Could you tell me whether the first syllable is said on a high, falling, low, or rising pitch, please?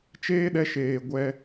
high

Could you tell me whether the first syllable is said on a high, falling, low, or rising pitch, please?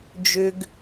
high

